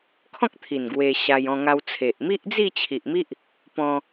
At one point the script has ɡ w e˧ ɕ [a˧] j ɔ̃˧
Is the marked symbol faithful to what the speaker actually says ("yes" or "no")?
yes